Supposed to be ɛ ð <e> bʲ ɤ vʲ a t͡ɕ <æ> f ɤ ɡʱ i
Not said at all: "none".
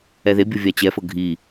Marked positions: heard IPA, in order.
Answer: e, ɛ

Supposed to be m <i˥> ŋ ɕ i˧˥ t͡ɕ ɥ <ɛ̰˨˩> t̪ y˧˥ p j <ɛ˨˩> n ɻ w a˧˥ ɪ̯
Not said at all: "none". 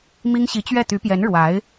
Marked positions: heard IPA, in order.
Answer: i˥, ɛ˥˩, ɛ˧˥

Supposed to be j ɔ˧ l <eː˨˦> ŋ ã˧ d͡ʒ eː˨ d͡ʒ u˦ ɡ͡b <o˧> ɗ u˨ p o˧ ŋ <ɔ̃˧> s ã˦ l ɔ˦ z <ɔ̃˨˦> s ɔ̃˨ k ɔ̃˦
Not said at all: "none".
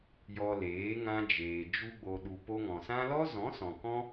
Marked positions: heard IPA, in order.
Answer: eː˨˦, o˧, ɔ̃˨, ɔ̃˨˦

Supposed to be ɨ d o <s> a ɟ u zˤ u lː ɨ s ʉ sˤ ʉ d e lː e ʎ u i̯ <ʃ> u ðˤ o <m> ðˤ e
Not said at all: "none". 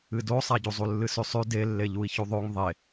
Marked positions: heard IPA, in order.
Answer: sˤ, ç, ŋ

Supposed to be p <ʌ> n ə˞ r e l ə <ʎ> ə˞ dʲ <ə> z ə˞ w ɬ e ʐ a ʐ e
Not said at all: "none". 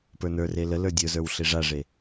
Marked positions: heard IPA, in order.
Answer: ə˞, l, ə˞

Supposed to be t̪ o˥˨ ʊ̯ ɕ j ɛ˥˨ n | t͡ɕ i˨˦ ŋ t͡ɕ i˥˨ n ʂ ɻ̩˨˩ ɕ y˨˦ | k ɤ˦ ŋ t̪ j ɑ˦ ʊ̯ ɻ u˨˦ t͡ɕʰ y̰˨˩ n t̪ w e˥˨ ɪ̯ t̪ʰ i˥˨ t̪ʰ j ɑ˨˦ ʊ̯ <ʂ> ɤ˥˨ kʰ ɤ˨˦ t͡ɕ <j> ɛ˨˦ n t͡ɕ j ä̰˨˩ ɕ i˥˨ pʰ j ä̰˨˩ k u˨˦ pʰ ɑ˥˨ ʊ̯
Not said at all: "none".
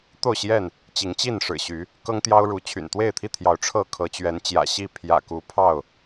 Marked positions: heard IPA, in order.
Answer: ʈ͡ʂʰ, ɥ

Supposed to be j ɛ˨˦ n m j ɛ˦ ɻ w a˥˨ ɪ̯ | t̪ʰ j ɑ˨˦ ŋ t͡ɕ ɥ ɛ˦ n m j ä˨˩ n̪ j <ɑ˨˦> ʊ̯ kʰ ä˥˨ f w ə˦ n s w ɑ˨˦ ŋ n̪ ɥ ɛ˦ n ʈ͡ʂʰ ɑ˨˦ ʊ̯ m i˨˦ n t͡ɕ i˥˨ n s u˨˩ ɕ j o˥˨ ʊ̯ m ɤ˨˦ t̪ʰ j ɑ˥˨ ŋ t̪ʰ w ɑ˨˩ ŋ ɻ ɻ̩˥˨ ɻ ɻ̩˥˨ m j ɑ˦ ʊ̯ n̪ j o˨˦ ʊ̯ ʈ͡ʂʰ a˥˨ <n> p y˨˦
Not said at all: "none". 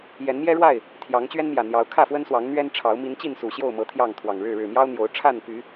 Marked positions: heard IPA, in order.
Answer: ɑ˨˦, n

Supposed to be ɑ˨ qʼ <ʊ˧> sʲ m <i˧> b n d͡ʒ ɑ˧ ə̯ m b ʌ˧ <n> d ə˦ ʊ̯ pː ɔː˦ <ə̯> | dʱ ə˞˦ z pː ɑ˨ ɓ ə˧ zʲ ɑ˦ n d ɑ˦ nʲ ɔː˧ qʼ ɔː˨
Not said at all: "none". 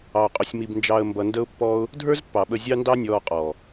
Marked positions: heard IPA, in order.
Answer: ʊ˧, i˧, n, ʊ̯

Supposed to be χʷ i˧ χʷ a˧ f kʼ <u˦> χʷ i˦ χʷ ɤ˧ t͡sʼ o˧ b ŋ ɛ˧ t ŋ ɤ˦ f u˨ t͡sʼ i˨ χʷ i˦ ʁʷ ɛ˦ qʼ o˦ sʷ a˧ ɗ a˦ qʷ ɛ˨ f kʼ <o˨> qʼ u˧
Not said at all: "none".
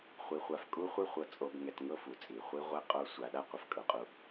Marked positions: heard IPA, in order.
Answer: u˦, ɤ˨

